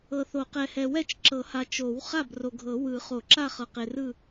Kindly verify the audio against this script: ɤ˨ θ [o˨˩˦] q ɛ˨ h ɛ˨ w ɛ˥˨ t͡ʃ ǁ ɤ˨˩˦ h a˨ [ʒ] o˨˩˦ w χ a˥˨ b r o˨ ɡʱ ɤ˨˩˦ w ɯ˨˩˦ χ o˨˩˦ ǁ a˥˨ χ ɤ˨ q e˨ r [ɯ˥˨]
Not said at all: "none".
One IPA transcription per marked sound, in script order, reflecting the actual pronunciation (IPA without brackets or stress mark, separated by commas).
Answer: o˨˩˦, t͡ʃ, ɯ˥˨